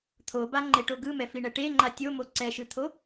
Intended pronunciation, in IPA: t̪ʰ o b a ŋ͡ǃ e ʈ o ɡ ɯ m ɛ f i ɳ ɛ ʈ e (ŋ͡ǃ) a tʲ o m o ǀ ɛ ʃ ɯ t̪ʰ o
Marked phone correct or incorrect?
correct